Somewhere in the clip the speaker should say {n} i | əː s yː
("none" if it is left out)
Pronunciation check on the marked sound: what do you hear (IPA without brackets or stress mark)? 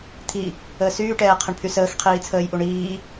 t̪ʰ